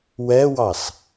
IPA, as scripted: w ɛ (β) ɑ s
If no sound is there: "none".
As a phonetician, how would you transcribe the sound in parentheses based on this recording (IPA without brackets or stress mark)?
w